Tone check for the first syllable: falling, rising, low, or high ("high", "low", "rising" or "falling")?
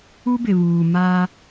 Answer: high